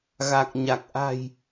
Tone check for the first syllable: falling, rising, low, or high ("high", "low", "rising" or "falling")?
low